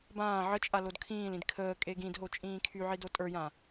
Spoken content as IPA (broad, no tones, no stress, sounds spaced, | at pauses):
b ãː ʕ ə t͡ʃʼ a l o d kʰ ĩː l ĩ d kʰ əː kʼ e ɡ ĩ d ɦ o t͡ʃʼ ĩː kʰ y ʕ i d o tʼ ə˞ j ã